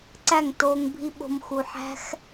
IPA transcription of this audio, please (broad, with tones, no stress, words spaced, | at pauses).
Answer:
ǀæ˦˨ŋ toː˧ŋbʱi˦ɓo̤˧m xu˨ħæ̤˦x